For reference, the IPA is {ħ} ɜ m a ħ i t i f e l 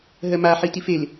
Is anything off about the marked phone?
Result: yes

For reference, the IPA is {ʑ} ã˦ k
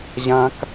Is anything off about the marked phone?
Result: no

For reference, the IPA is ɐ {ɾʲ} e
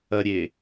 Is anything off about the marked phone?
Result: no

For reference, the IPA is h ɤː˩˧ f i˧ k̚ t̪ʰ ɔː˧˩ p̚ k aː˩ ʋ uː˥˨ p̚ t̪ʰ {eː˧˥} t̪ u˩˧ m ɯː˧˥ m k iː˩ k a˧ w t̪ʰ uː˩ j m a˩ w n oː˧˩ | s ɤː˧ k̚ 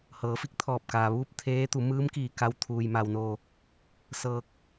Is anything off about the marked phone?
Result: no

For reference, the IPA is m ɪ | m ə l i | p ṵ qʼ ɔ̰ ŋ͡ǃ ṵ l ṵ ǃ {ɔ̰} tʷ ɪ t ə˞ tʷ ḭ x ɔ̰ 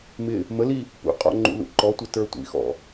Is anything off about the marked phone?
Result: yes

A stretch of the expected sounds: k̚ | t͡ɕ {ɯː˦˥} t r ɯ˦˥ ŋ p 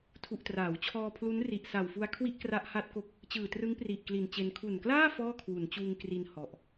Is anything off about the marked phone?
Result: yes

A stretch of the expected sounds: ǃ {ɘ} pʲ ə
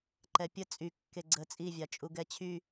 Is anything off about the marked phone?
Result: yes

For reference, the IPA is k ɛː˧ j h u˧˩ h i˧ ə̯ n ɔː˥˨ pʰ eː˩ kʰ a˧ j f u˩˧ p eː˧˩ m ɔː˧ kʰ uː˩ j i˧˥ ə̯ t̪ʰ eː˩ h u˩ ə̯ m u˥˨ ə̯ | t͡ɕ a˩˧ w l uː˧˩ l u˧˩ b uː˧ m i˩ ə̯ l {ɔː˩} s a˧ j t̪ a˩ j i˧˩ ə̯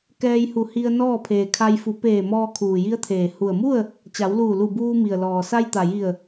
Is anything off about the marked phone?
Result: no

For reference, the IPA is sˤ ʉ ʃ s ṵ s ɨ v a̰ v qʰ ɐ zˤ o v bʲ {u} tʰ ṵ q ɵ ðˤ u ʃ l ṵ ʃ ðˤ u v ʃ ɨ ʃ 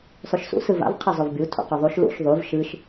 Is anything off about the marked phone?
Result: no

